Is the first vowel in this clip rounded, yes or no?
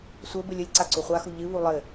no